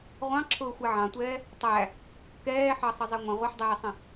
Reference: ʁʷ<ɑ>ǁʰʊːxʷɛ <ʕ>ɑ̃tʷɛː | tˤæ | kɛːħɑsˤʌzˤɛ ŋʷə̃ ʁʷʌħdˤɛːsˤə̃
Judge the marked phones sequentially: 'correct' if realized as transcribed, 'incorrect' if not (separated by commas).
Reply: incorrect, correct